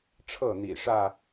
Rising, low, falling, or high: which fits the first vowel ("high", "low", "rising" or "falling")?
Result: falling